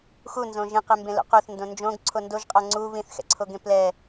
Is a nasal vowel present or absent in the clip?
present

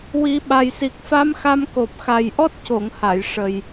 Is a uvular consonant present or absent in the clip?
absent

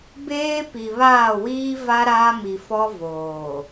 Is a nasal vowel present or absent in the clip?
absent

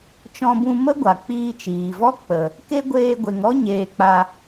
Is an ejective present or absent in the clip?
absent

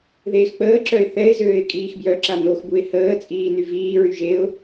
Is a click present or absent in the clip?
present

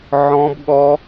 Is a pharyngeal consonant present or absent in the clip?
present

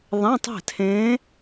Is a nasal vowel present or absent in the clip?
present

